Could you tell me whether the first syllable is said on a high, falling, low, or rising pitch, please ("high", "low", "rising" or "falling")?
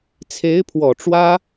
rising